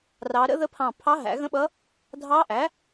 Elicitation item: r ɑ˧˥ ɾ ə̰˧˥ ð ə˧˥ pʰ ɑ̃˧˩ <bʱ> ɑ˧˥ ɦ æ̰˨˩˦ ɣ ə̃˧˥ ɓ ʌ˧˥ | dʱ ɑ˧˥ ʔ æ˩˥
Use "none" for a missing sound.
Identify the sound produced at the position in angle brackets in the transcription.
pʰ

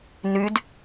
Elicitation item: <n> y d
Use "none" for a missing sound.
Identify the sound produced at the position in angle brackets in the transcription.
n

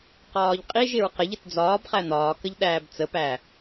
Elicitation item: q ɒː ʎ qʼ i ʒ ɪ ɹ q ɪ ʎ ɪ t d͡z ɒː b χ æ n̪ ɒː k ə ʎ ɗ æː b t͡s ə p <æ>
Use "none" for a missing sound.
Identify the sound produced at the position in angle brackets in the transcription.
æ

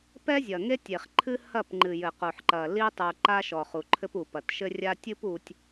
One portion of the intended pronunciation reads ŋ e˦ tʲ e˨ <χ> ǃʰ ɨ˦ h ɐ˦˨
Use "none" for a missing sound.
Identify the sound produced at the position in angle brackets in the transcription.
χ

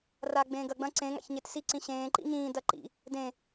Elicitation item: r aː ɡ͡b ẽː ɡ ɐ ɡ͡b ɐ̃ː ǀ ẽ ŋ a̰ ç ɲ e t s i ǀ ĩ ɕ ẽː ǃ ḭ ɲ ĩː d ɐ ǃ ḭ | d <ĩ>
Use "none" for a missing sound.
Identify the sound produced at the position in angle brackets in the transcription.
ẽ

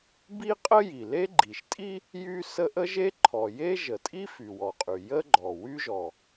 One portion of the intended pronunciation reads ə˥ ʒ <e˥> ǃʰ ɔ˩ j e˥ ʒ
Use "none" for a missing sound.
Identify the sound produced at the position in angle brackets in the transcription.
e˥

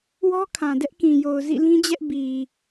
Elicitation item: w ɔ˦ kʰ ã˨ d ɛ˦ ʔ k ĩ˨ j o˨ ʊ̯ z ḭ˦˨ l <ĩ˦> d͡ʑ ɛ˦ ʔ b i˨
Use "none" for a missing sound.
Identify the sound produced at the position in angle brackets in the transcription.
ĩ˦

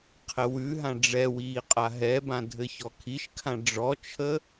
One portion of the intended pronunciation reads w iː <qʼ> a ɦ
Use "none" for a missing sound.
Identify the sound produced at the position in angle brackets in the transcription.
qʼ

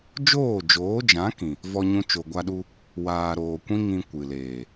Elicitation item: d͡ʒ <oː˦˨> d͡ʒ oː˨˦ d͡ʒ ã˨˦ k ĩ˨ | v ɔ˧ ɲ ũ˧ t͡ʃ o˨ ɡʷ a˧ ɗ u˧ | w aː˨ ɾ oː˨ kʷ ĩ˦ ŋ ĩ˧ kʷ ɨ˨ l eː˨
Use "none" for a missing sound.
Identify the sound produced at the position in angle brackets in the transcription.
oː˦˨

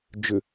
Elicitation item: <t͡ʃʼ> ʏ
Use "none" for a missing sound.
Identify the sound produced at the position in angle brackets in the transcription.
d͡ʒ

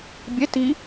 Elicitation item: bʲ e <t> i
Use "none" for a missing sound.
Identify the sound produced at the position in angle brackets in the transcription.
t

